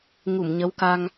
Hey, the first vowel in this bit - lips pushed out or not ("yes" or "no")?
yes